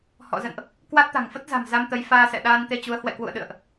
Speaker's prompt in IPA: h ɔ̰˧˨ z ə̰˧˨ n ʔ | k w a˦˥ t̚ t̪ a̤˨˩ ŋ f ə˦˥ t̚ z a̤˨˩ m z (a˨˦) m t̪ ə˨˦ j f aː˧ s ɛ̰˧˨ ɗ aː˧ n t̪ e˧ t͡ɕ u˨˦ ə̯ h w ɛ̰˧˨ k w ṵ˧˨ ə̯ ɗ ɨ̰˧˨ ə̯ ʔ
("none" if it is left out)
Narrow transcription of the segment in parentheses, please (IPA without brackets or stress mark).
a˧